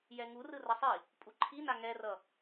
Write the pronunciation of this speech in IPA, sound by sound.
j ɛ ŋ u r ɯ r ʌ sˤ i | pʼ u ǃʰ i n a ŋ ɛ r ʌ

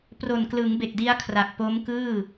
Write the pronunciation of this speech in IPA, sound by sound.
p r o˨˩ n k l ɯ˩˦ ŋ b e˨˩ k̚ d i˦˥ a̯ kʰ r a˨˩ k̚ p o˦˥ m k ɯː˥˩

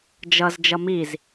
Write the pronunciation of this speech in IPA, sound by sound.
d͡ʒ ʌ z d͡ʒ ʌ m i z

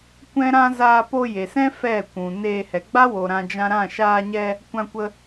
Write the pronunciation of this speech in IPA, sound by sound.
kʷ ɛ̃˦ ɾ ã˦ z aː˧ p o˧ j e˨ s ɛ̃˦ f ɛ˦˨ kʷ ũ˨ n eː˧ h ɛ˨ ɡ͡b a˦ w o˨ ɾ ã˧ d͡ʒ ã˧ ɾ ã˦˨ ʃ aː˧ ɲ ɛ˧ | kʷ ã˧ kʷ ə˧

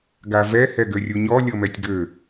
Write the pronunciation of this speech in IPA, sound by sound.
ɡ a v ɛ h ɛ ɡ ø rʲ u ɲ ɔ lʲ ɤ m ɛ tʲ ɡ ø

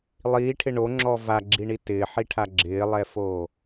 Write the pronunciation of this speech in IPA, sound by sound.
lˠ iː ʈʰ ɪ ɳ o ŋ͡ǁ ɔ v a ɡ͡ǁ i ɳ i t ɪː ħ i ʈʰ a ɡ͡ǁ ɪː lˠ ɛ f oː

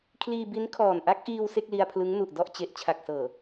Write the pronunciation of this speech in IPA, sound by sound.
kʰ l iː˧ b i˦˥ n kʰ ɔː˨˩ n ʔ a˦˥ k̚ ʔ iː˧ w s e˥˩ k̚ l i˧ a̯ pʰ l ɯ˦˥ ŋ n u˨˩ ʔ d ɔ˥˩ ʔ t͡ɕ e˨˩ ʔ t͡ɕʰ a˨˩ k̚ s ɤː˨˩

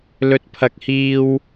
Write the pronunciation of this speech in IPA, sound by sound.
l ɵ˨ t̚ pʰ ɐ˨ k̚ h iː˧ w

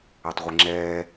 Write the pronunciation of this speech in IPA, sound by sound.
ɛ tˤ ʁʷ i ŋ͡ǁ ɛː

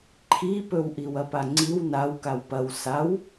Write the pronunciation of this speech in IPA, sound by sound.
ǃʰ i p ɵ w ʔ i w ɐ p a ŋ͡ǀ i w n a w k a w p ɐ w s a w

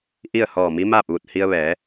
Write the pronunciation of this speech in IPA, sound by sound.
ʔ i˥˨ ə̯ h ɔː˧˩ m i˧˥ m aː˥˨ p̚ ʋ u˧˩ t̚ h i˧ ə̯ ʋ ɛː˩˧

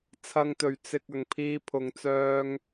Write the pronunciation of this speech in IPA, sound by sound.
t͡sʰ ɐ˨ ŋ t̪ ɵ˨˩ ɥ t͡s ɪ˨ k̚ ɐ˨˩ ŋ pʰ iː˧ pʰ ʊ˨˩ ŋ t͡s œː˧ ŋ

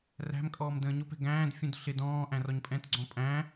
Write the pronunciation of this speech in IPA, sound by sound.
r æ̤ m kʼ ɔː m d ə̃ː ɲ ʊ p ɛ̤ ɡ æ̃ː d fʲ ũ d ɬ ɪ d ɔ̃ː ʔ æ̃ r ɔ ɲ pʼ ɛ̃ t ɡ͡ǀ ɔ̃ pʼ æ̃

